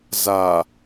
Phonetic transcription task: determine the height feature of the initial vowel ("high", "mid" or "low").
low